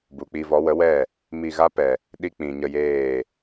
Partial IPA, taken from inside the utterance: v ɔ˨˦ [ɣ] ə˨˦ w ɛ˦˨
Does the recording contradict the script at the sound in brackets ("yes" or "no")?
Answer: yes